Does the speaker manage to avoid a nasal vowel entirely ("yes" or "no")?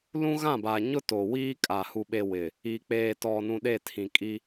no